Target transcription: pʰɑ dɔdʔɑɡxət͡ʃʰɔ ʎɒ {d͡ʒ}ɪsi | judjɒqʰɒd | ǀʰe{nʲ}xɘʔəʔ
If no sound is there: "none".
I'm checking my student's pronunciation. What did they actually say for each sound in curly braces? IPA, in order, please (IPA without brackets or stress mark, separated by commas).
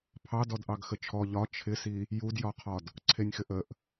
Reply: t͡ʃʰ, nʲ